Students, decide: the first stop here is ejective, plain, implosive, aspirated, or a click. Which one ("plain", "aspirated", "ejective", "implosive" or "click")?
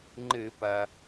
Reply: click